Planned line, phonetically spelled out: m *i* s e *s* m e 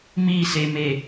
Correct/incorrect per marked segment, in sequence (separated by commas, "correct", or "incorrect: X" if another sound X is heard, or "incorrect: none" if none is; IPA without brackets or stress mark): correct, incorrect: none